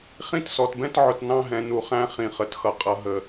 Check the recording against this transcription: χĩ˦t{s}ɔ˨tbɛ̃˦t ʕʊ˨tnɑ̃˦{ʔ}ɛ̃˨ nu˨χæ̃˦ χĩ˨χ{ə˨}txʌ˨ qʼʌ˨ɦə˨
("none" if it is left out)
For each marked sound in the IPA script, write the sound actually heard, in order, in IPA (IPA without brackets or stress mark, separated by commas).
s, ɦ, ə˨